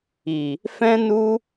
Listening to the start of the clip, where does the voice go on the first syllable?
low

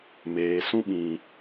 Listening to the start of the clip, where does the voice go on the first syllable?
low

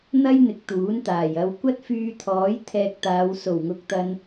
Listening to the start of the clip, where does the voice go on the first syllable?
high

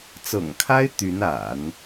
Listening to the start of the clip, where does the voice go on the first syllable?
low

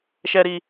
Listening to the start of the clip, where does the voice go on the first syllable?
low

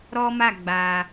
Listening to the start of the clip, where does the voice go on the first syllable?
high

